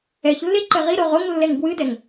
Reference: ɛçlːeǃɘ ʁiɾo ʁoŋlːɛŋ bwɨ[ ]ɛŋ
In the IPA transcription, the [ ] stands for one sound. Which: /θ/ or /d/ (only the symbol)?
d